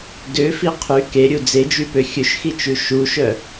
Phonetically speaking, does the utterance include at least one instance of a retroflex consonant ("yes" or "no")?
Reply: no